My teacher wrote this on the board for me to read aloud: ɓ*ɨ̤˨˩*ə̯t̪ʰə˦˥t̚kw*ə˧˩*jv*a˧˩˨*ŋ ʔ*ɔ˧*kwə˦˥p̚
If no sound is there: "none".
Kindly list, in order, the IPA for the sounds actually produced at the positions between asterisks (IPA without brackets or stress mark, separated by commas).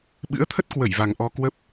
ɨ̰˧˥, ə˧˩, a˨˩, ɔ˧